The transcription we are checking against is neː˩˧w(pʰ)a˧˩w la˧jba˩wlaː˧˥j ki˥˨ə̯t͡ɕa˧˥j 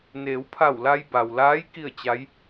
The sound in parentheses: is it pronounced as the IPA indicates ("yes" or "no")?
yes